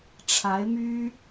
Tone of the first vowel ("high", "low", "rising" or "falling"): rising